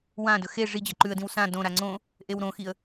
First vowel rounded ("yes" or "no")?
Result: no